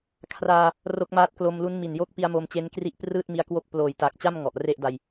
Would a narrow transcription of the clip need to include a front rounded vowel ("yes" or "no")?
no